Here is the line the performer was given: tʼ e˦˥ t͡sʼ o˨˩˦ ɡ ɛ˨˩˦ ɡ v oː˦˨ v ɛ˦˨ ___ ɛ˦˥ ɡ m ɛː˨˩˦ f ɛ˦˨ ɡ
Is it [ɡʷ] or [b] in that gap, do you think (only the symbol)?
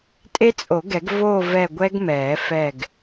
ɡʷ